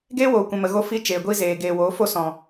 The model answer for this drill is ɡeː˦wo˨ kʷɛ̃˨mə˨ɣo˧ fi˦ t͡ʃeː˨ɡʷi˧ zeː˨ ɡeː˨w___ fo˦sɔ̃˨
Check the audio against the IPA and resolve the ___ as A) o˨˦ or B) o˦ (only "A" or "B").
A